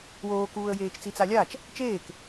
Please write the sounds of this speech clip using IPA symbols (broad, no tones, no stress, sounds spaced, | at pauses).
w oː k uː ə̯ j eː t͡ʃ t͡s i t͡s a lʲ a t͡ʃ | t͡ʃ eː k